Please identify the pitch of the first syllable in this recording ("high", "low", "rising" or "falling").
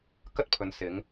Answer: high